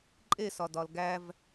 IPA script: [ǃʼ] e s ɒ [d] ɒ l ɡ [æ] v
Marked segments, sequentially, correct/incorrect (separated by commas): correct, correct, correct